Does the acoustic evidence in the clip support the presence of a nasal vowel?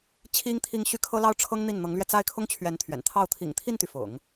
no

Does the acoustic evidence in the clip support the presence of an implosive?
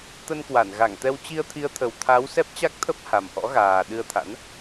yes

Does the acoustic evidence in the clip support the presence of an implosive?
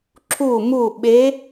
yes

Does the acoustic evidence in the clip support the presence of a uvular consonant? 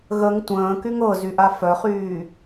yes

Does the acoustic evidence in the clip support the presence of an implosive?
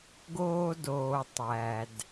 no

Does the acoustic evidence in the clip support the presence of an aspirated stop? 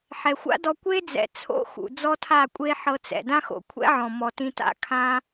yes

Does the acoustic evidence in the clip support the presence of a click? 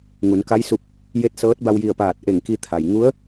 no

